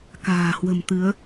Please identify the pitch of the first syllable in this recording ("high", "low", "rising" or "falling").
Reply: low